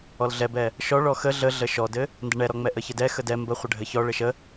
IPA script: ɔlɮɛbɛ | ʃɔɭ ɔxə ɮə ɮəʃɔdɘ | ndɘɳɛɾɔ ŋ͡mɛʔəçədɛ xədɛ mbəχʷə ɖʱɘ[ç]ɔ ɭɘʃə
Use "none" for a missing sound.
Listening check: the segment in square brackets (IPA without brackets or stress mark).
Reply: ç